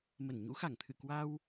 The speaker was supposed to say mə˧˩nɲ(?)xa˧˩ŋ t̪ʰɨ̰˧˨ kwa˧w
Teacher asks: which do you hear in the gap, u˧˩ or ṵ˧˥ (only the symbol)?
ṵ˧˥